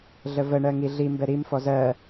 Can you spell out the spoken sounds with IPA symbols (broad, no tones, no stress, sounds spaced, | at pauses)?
ɮ ə v ə ɳ ɜ ŋ i ɮ i m b ɛ ɾ i m f ɔ z ɜ